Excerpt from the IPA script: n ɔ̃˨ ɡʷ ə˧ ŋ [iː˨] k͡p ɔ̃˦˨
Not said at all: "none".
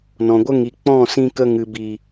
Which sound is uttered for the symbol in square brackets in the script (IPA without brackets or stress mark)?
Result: i˨